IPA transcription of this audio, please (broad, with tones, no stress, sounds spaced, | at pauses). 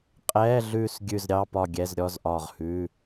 qʼ ɛː˧˥˧ ɮ ʉː˦˨ s ɡʲ ʉ˦˨ z ɾʲ ɑ˧˥˧ p ɒ˦˨ ɡʲ ɛ˧˥˧ z ɾʲ ɔ˧˥˧ z ʔ ɒː˦˨ ʁ h ʉː˧˥˧